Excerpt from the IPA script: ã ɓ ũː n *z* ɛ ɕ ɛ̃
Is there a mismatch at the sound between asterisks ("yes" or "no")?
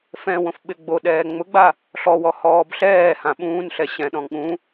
yes